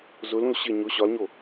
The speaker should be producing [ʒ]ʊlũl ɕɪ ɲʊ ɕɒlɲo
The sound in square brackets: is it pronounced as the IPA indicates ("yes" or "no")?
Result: no